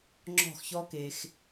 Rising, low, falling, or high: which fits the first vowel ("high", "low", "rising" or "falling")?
falling